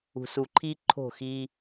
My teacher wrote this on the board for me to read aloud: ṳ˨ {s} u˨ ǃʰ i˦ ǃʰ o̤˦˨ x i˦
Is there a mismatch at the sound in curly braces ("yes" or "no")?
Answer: no